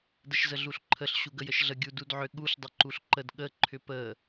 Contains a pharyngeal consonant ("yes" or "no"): yes